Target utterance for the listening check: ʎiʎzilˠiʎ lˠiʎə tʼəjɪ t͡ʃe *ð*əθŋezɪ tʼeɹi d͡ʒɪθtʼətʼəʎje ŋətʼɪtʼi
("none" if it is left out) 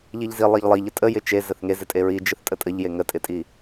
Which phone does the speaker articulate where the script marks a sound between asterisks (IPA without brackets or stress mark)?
z